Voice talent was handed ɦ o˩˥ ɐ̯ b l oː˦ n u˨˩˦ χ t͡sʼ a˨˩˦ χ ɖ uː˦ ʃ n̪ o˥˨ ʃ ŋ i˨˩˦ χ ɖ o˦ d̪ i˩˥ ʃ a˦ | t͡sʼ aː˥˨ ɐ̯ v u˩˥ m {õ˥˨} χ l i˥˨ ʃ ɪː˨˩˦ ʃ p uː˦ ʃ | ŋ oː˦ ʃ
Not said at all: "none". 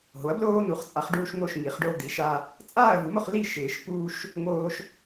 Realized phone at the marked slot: o˥˨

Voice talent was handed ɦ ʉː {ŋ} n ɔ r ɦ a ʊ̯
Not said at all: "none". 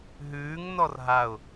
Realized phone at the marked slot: ŋ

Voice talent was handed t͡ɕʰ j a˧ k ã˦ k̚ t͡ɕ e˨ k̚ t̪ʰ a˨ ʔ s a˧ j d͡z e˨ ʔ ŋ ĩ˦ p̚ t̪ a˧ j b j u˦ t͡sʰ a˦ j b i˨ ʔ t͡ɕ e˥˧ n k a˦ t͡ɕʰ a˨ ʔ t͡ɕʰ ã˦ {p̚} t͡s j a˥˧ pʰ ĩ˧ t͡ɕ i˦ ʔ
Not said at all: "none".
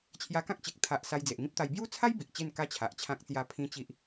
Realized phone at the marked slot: k̚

